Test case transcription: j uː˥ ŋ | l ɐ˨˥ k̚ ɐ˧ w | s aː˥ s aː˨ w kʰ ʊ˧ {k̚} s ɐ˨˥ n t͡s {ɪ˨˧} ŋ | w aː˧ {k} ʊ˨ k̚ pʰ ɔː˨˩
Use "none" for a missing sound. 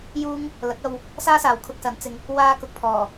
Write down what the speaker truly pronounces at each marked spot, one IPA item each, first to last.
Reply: k̚, ɪ˨˧, k

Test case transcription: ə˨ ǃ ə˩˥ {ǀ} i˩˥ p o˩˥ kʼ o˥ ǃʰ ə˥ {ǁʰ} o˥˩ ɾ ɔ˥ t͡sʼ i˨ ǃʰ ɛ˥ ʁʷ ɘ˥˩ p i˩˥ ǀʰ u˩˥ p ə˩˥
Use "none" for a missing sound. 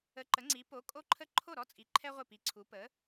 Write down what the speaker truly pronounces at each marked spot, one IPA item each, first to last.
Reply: ŋ͡ǀ, ǃʰ

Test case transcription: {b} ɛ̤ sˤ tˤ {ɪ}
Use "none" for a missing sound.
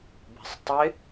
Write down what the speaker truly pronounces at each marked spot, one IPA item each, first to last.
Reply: b, ɪ

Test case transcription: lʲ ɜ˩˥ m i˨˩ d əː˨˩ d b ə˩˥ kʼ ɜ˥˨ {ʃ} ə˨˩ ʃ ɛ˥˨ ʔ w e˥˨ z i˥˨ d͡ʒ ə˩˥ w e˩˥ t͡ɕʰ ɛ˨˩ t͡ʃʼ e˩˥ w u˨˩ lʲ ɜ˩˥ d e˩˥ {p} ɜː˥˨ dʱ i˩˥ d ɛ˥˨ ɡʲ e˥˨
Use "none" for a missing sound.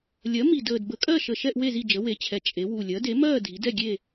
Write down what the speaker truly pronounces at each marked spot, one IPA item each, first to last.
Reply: ʃ, m

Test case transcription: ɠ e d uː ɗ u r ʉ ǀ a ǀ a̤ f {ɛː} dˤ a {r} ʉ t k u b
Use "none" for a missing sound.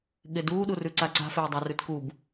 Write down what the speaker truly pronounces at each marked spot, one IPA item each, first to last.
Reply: eː, r

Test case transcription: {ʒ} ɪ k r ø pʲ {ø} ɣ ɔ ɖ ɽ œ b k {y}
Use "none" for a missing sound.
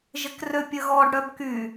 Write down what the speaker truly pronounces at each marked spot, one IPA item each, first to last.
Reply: ʒ, ə, y

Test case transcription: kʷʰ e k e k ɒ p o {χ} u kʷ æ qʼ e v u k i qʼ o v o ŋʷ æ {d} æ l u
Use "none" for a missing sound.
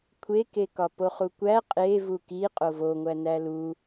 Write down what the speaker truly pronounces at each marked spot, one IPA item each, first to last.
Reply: χ, n

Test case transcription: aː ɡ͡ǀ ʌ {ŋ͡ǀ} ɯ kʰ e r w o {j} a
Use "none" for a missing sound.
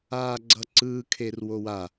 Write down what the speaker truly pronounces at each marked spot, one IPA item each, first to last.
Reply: ǀ, w

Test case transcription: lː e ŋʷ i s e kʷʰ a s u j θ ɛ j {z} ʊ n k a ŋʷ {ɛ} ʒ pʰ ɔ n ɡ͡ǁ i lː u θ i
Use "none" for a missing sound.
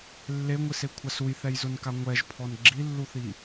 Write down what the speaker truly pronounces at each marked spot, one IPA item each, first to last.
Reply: z, ɛ

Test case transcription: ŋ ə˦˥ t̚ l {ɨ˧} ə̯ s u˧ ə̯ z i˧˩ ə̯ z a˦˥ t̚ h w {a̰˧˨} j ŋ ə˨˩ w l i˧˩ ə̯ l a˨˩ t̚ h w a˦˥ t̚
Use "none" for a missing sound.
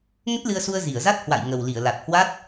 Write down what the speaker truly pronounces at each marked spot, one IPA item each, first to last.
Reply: ɨ˧, a̰˧˨

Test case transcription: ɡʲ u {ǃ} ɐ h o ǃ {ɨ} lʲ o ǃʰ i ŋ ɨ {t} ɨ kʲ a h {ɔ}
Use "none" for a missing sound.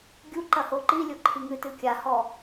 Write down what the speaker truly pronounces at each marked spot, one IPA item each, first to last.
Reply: ǃ, i, t, ɔ

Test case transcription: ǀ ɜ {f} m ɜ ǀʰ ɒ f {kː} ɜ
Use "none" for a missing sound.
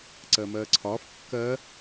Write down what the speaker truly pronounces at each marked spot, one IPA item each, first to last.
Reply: none, kː

